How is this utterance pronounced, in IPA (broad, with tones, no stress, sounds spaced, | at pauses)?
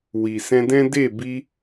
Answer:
w i˨ s ɛ̃˧ d ɛ̃˦ d e˦˨ b i˧